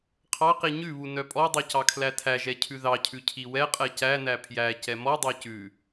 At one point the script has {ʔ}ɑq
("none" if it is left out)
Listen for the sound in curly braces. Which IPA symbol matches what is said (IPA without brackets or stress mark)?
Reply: qʰ